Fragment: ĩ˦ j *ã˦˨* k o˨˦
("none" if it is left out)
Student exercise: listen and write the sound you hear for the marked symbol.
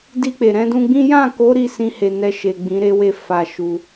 ã˦˨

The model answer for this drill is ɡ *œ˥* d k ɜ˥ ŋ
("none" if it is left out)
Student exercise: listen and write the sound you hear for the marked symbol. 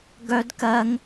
œ˥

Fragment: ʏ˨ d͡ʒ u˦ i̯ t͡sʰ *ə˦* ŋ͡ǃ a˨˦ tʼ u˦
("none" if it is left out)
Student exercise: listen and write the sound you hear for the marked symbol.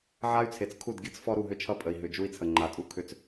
ə˨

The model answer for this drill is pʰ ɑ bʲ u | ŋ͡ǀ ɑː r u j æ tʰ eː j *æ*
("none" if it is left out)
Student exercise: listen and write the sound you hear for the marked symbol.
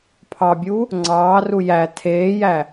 æ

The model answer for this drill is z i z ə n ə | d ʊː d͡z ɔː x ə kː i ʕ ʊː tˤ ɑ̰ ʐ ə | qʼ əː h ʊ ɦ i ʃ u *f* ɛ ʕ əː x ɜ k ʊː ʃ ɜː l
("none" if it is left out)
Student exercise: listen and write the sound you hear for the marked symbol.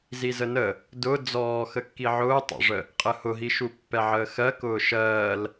pː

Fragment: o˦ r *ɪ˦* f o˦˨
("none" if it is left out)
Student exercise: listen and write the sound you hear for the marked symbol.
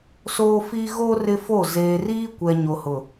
ɪ˦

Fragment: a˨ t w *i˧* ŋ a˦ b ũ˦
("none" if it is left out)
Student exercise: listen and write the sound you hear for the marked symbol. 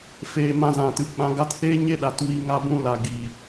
i˧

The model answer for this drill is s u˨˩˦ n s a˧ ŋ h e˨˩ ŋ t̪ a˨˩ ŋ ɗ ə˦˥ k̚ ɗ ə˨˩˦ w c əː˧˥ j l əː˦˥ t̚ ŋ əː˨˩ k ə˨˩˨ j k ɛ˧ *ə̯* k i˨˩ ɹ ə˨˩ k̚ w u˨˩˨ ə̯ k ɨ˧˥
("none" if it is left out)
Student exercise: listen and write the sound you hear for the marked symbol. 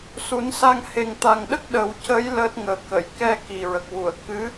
none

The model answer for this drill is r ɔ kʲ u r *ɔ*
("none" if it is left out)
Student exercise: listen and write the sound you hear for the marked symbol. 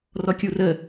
ə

